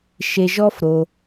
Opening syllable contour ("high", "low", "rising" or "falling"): low